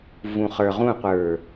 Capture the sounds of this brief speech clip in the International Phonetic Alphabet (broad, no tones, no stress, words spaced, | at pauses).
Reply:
vũχə˞ʁũqʷə˞